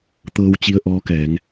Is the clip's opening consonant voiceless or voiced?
voiceless